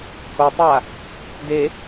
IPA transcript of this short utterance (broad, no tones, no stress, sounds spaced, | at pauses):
h o tˤ a | d e